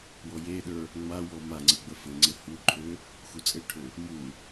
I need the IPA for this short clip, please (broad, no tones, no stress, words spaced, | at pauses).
wɔjeɗə˞ | ŋ͡mawɔ maŋ͡ǀɘ ɡ͡bəfɘŋ͡ǀɘ huǃʰø | xut͡sʼɘʈʰø | mu